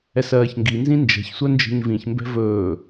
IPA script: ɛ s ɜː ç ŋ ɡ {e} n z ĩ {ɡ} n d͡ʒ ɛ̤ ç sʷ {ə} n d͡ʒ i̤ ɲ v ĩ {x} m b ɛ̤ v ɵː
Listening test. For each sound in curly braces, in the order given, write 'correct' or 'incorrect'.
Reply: incorrect: i, incorrect: none, incorrect: œ, incorrect: ç

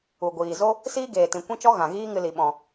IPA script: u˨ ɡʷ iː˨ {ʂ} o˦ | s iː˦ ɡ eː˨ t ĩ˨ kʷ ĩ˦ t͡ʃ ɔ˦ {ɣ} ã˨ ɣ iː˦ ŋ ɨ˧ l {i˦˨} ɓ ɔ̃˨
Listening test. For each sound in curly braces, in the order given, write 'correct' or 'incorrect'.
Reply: incorrect: z, correct, incorrect: i˨

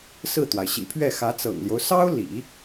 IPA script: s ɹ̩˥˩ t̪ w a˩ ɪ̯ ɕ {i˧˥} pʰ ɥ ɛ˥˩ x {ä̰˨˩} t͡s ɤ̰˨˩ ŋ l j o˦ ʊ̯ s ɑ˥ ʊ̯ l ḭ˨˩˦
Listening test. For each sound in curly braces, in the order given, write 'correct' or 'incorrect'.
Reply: incorrect: ḭ˨˩, incorrect: ä˧˥

